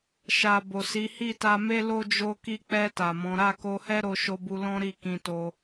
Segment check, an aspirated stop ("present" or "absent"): absent